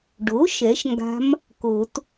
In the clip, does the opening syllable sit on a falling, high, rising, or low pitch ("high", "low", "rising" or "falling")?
rising